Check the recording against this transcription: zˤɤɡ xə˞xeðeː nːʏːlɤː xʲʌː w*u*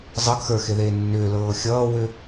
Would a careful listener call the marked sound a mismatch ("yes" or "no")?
yes